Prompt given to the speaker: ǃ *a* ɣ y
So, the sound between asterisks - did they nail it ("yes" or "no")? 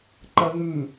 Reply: no